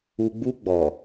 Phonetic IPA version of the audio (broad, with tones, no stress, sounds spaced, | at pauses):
u˨ ɡ͡b u˧ ɡ͡b ɔ˨